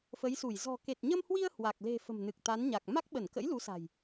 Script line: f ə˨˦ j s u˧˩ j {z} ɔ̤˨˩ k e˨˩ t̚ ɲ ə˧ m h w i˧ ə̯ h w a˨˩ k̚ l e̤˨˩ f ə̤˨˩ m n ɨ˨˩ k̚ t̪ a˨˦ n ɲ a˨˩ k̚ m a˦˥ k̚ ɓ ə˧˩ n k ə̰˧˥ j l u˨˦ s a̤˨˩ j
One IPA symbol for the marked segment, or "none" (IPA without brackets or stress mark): z